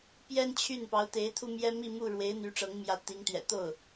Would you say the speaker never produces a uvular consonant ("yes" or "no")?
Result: yes